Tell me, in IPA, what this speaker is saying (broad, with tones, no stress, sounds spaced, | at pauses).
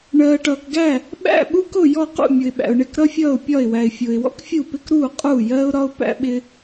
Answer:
ɳ ɜː˩ ʈ ʌː˩ k ɡ æ˥˩ | ɓ æ̰˥˩ ɓ u˥ k ʊ˥˩ j ɔ˥˩ q ṵ˥˩ mʲ ʊ˩ ɪ̯ ɓ æ̰˩ ʊ̯ ɳ ɪ˥˩ k ɾ ʌ˥ fʲ ʌː˥˩ ʊ̯ pʲ ɒ˥˩ ɪ̯ w æ˩ ɪ̯ fʲ ʊː˩ ɪ̯ w ɔ̰˥ k fʲ u˥˩ p ɪ˥ k ɾ uː˥˩ qʼ uː˥˩ j ɜː˥ ʊ̯ ɾ ɒ˥ ʊ̯ p æ̰˥ ɓ ɪ˥